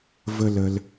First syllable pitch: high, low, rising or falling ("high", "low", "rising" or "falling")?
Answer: high